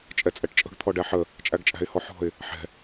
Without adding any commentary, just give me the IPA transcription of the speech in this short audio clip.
t͡ʃʼ ɛ t͡sʼ ɛ ʈ t͡ʃʼ ə̤ ɡ t̪ʰ ɔ ɖ æ ħ ə | t͡ʃʼ æ ɡ t͡ʃʼ æ̤ ɪ̯ h ɔ ħ ɔ̤ ɪ̯ | ħ ɛ̤

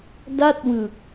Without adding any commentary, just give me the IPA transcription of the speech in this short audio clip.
d a˥˩ t̚ w ɯ˨˩ k̚

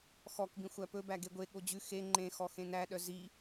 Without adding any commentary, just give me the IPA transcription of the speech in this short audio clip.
x ɔ k b ĩ xʷ æ p ɵ b æ ɡ e ɡʷ e ɠ o d͡ʑ ʉ x e ŋ͡ǃ ẽ x ɔ x ẽ n æ ɗ œ z i

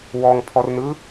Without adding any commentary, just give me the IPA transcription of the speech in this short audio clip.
w ɔ ŋ pʰ ɔ r n ɯ

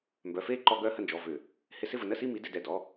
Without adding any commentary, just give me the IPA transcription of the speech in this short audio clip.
m b œ˩˧˩ f e˥˩ ǃ ɔ˧˩˧ ɡ œ˨˦ h ə˩˧˩ n d͡ʒ ɔ˩˧˩ v ʏ˧˩˧ | h ɪ˧˩˧ s ɪ˥˧ v ə˧˩˧ n ə˥˧ s i˥˧ m i˨˦ d ɪ˧˩˧ d ɛ˩˧˩ d ɔ˩˧˩

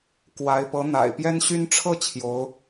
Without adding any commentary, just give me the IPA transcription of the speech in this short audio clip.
k w a˧˥ ɪ̯ p ɤ˧˥ n̪ a̰˨˩ ɪ̯ p j ɛ˥ n ɕ y˥ n ʈ͡ʂʰ ɤ˥˩ t͡ɕʰ j o˧˥ ʊ̯

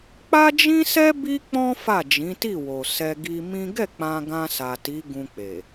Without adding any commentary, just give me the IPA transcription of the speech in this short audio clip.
k͡p a˦ d͡ʒ ĩ˦ s ɛ˦ b i˦ k͡p ɔ̃˦ f a˦˨ d͡ʒ ĩ˨˦ t i˦˨ w o˨ s ɛ˧ ɡ i˧ m ĩ˦ ɡ ɛ˦˨ k͡p ã˧ ɡ ã˧ s a˨ t i˨˦ ɡ ũ˧ k͡p e˨

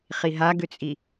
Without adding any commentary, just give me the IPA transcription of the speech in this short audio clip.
χ i ɦ a ɡ ʏ t͡sʼ i

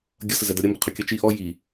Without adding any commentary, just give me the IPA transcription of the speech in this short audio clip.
ɡʲ ʌ s ə z ɛ d ʌ ɾʲ ə m b ə qʰ ɵ kʲ ʌ t͡ʃ i ʔ ɔ j i

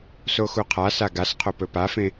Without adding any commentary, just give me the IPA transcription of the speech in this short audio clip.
s o x u qʰ a s a ɡ a s qʰ o p ɵ p a f ẽ

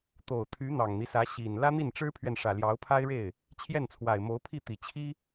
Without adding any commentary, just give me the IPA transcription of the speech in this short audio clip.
t̪ o˨˩ ʊ̯ t̪ʰ y˧˥ n̪ ɑ˨˩ ŋ n̪ i˦ s ä˧˥ ɕ i˨˩ n l ä˥ n̪ i˥˩ n ʈ͡ʂ ɻ̩˥ pʰ ɥ ɛ˨ n ʂ ä˨˩ l j ɑ˧˥ ʊ̯ pʰ a˥ ɪ̯ ɻ e˥˩ ɪ̯ | t͡ɕʰ j ɛ˥˩ n t͡sʰ w a˨˩ ɪ̯ m o˧˥ ʊ̯ pʰ i˥˩ t̪ i˨˩ t͡ɕʰ i˥

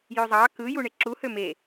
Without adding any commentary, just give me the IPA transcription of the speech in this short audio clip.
j ø zˤ ɑ k ɯ j u ɳ e ǁ u h ø m e

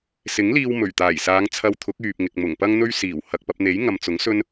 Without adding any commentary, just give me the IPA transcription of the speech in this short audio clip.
s ɪ˨˥ ŋ l iː˧ w m ɵ˨˩ ɥ t̪ aː˨˩ j s aː˨˧ ŋ t͡sʰ ɐ˧ w t̪ʰ ʊ˨˥ k̚ yː˨ p̚ ŋ ɪ˨ k̚ m ʊ˨˩ ŋ p ɐ˥ ŋ n̪ ɵ˥ ɥ s iː˨˩ w h ɐ˨ k̚ p ɐ˧ p̚ n̪ e˨˥ j ŋ ɐ˨ m t͡s ʊ˨˥ ŋ s ɵ˥ n

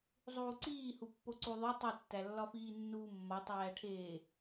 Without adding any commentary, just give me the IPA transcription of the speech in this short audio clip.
zˤ uː ǀ iː h u pː o ǀ u ðˤ o tˤ i tː æ lː ɒ f iː nː uː mː ɒ tˤ æː ʈʰ eː

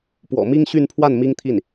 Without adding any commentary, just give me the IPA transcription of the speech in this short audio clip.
p w ɔ̰˨˩ m i˥ ŋ ɕ y˥˧ n pʰ w a˥˩ n m i˥ ŋ t̪ʰ i˥˩ n

